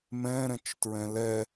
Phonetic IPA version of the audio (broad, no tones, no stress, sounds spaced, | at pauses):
m ɛ̃ ɾ ɛ̃ t͡ʃ t ɹ ɛ̃ l ɛ